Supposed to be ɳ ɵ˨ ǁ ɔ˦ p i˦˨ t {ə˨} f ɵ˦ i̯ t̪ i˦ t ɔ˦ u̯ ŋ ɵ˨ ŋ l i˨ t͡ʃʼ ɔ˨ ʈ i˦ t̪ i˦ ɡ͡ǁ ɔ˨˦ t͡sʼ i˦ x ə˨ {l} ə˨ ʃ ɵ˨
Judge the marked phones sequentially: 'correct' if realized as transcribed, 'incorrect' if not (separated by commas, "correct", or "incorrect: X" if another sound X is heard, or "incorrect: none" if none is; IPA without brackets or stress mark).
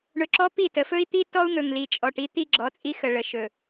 correct, incorrect: ɭ